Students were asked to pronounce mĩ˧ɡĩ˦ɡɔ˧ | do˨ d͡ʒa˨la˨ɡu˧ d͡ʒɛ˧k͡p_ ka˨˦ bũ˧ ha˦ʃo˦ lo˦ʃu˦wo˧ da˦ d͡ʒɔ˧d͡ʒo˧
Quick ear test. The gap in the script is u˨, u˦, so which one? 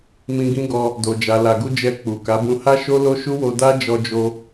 u˨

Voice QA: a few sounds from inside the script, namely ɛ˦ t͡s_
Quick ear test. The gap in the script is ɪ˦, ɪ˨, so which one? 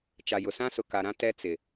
ɪ˨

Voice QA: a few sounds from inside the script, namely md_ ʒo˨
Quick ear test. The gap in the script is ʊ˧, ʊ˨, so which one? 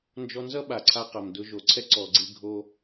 ʊ˧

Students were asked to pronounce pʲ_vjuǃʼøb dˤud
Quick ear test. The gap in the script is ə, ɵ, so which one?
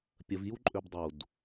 ə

